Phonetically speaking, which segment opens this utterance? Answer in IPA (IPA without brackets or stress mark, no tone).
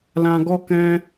l